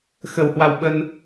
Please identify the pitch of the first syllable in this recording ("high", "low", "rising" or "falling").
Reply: low